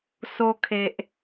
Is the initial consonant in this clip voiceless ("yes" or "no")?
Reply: yes